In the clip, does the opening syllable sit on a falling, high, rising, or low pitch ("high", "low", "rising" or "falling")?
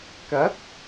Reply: rising